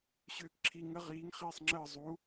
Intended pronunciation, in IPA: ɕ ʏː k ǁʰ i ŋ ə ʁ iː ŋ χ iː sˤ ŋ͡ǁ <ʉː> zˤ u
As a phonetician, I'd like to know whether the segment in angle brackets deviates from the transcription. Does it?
yes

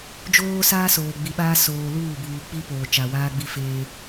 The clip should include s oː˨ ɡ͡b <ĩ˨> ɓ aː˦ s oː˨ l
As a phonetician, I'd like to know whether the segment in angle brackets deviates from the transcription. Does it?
yes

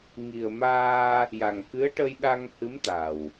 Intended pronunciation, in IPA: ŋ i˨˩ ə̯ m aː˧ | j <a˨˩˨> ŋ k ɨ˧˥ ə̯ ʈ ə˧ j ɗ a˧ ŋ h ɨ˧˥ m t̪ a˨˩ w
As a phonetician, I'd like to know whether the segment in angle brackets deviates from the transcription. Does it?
yes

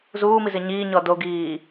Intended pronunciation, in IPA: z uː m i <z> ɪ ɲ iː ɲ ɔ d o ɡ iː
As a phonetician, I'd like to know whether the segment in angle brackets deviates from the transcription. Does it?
no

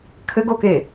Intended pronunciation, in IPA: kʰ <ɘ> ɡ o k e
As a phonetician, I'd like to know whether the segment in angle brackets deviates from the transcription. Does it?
no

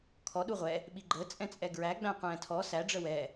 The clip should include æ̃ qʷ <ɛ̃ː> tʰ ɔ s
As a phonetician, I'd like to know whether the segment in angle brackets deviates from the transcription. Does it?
no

